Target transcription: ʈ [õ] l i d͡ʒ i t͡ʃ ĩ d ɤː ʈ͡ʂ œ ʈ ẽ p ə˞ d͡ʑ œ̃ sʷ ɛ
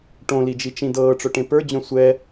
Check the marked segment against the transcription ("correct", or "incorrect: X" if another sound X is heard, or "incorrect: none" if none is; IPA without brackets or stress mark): correct